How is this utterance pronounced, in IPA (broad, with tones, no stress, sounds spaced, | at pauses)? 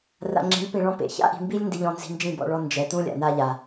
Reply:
r a̰˧ ŋ͡ǁ i̤˨˦ lʲ p ĩ˨ ɭ ɔ̃˧ p ḛ˨ ç a̰˦ ʔ i̤˨ m b i˦ lʲ n d i˧ ʎ ɔ̃˧ n z i̤˧ n d͡ʒ ĩ˦˨ b ɔ̰˧ ɭ ɔ˧ n d͡ʒ ɛ˨ t ũ˦ lʲ a̰˨ n a˧ ʎ a˨